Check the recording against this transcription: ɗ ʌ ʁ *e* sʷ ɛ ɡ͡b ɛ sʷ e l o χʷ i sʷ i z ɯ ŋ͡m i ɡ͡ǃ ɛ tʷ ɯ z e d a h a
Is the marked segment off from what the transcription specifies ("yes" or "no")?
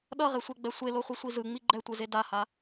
no